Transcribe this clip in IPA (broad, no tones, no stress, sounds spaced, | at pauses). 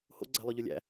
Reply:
h o̰ ɡ͡ǀ æ̤ lˠ œ ʎ ɵ lʲ æ̰